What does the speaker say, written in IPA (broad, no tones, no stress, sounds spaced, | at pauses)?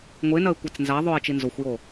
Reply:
ŋʷ e n ɐ e̯ kʷ a t͡s n z a ðˤ o e̯ t͡ʃ i n z o xʷ j o